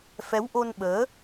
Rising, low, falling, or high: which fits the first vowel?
rising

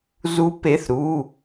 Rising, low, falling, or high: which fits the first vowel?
rising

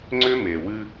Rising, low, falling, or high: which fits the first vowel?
high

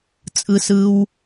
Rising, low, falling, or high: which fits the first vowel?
high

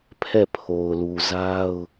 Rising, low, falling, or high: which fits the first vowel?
falling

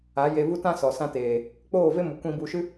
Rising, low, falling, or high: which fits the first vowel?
rising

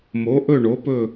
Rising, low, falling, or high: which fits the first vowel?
rising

